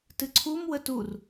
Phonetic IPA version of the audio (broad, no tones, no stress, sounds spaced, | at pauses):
t ɨ ǀʰ u m w ə t u r